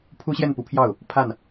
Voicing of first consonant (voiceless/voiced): voiceless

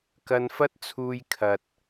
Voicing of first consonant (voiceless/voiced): voiceless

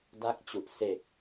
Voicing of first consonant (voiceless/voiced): voiced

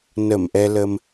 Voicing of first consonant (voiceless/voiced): voiced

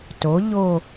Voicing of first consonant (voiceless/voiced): voiceless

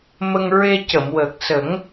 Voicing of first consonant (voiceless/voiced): voiced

